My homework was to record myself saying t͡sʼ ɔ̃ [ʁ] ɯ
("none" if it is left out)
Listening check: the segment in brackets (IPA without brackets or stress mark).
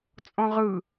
ʁ